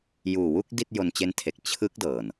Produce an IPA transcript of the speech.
juː˨˩wu˥˩k̚ di˥˩t̚jo˧nt͡ɕe˦˥ntʰe˨˩k̚ t͡ɕʰɯ˦˥k̚ dɤː˨˩n

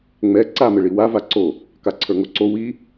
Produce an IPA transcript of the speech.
ŋ͡mɛ ǀamɘɭi wa vaǀo | kaǀʰə˞ŋoǀo wi

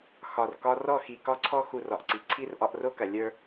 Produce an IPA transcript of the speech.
xɒ˨r kɒ˧rɔ˦˨xi˨ kɒ˦ǀʰɔ˦ xu˧rɒ˨ʔǀi˨ ǀʰi˦r ʔɒ˧ʔro˦kɐ˨ lʲə˞˦

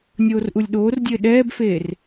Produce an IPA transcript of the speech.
nʲoːrʔulʲɗoːrdʲɘː ɗɛːbfeːr

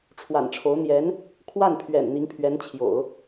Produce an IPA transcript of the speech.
ʈ͡ʂʰwa̰˨˩nʈ͡ʂʰo˧˥ʊ̯ n̪jɛ˧˥n | kʰwa˥˩npʰɥɛ̰˨˩n n̪i˧˥ŋpʰɥɛ˧˥nt͡ɕʰjo̰˨˩˦ʊ̯

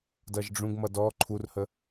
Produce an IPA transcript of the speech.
dʌʒɖ͡ʐũɡmʌ dɔ ǃʰurhə

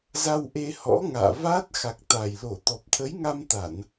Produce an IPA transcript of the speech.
za˧wʔe˧hɔ̰˧˥ ŋa̰ː˧˨va˦˥t̚ xa˨˩k̚t̪a˨˩jlo˧˩ t̪ɔ˨˩p̚t̪ʰə˨˦jŋa˧mt̪a˧˩˨n

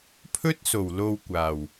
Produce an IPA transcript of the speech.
pʰɵ˥t̚so˨˩w lo˧wkʷaː˨˩w

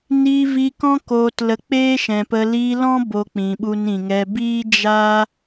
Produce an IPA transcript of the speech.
niː˧vi˧kɔ̃˦ koː˧tlə˧ k͡peː˦ʃɛ̃˨pə˧ liː˧lɔ̃˦ bo˧k͡pĩ˨ɓu˧n ĩ˨ŋɛ˧ biː˦d͡ʒa˦

